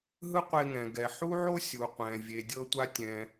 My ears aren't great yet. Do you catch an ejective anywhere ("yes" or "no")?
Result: no